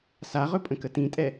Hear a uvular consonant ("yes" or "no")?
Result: yes